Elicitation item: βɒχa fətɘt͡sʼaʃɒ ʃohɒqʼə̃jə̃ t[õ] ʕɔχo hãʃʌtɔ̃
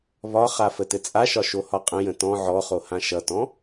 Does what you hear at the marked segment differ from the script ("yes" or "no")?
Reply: yes